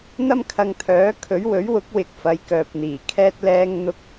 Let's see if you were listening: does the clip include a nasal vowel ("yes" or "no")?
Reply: no